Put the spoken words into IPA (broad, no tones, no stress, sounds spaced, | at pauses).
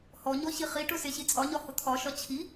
h ɔ ɲ ɔ ɕ i χ i ʈ ʊ s e ɕ i t͡sʼ ɒ ɲ ɒ h ʊ t̪ʰ ɒ ʃ ɒ t͡ɕʰ i